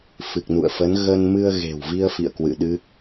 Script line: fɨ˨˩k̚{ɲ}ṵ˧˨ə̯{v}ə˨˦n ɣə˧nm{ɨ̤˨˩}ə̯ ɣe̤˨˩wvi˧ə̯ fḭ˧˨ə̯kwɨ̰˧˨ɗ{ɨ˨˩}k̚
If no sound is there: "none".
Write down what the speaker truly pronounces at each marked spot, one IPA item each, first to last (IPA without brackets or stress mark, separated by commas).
n, f, ɨ˧, ɨ˦˥